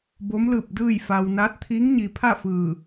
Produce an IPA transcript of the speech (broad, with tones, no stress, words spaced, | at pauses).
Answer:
bo˧˥mlɯː˧˩p̚ dɯː˥˨j fa˧w naː˧˥t̚t̪ʰiː˧˥ŋɲi˩˧pʰa˥˨ fɯː˧˩